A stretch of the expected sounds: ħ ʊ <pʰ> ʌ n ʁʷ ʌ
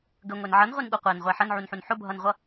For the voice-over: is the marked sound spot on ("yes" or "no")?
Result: no